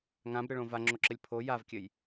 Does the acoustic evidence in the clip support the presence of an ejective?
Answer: no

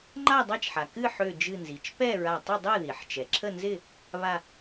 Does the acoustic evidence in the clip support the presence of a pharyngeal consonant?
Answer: yes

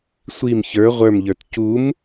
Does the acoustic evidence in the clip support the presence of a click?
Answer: no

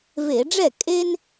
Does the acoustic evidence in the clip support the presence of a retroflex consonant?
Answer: yes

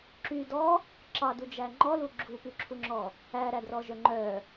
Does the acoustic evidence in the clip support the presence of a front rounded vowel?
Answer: yes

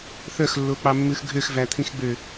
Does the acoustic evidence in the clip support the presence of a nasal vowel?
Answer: yes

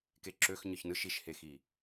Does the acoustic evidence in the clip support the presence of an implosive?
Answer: no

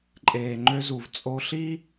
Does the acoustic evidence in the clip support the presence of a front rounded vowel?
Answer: yes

